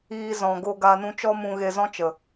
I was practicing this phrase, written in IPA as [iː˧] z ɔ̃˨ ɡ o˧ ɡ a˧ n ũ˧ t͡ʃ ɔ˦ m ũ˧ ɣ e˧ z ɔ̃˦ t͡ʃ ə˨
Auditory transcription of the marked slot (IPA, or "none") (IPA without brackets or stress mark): iː˧